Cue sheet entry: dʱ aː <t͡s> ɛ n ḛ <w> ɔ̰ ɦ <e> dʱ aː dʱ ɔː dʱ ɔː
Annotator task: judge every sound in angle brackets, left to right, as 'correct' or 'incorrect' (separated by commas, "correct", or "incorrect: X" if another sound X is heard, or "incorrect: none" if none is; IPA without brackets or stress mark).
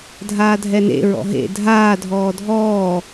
incorrect: dʱ, incorrect: ɹ, incorrect: ḛ